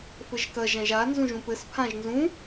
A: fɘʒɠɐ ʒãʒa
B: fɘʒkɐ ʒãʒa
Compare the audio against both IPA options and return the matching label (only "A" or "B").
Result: B